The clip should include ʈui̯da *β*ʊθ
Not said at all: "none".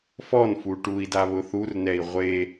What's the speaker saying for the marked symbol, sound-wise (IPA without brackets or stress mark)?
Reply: β